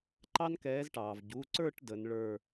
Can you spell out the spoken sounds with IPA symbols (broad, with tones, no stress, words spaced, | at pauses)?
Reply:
ǃɑ˦nkɛː˨˦zʈɑː˩v ɟu˩˧˩ǀə˞˦˨ʈ də˨˦nɭə˞˦˨